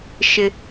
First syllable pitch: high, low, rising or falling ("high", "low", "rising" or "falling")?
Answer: high